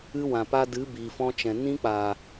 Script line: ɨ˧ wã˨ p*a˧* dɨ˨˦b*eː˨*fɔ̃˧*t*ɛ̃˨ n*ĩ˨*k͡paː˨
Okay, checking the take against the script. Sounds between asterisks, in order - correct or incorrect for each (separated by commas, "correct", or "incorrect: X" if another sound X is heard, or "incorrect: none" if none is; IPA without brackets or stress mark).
correct, incorrect: iː˨, incorrect: t͡ʃ, incorrect: ĩ˧